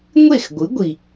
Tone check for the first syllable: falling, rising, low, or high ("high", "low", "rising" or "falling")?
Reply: falling